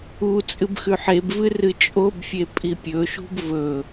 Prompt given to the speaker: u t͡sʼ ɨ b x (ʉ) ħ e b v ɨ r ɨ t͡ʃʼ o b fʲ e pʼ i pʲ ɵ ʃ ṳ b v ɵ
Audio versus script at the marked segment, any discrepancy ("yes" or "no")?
no